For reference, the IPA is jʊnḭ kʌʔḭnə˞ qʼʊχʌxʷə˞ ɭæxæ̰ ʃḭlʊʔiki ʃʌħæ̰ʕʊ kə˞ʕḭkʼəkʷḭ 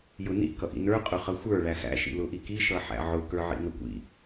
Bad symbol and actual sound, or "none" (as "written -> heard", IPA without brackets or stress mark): kʼ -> ŋ